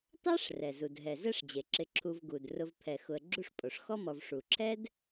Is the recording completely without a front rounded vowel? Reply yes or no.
yes